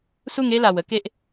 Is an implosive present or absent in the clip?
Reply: absent